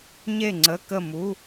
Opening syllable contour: falling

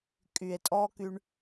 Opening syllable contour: low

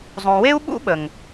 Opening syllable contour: low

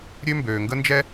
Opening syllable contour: high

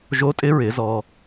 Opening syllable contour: rising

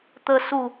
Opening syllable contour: low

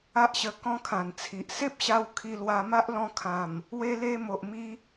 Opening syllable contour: high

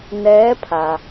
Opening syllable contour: rising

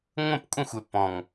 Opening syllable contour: falling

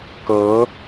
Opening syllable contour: rising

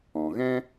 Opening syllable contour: low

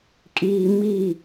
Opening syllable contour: high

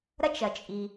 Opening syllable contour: high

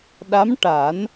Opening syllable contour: rising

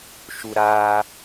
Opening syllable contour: high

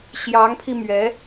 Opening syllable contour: rising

